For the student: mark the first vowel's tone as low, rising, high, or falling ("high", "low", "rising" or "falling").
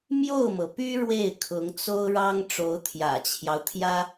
falling